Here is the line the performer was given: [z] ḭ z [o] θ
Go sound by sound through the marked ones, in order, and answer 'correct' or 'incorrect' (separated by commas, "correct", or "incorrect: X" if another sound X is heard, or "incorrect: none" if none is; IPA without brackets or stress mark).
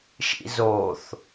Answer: incorrect: ʃ, correct